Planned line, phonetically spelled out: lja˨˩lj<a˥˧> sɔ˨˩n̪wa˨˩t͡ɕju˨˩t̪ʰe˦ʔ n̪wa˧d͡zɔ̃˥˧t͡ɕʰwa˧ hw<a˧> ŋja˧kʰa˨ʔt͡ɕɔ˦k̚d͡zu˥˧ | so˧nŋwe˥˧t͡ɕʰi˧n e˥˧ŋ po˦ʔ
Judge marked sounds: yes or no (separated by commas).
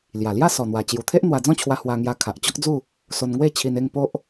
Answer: yes, yes